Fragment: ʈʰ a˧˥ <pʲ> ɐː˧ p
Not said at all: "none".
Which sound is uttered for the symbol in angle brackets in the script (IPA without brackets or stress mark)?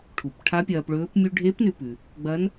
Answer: pʲ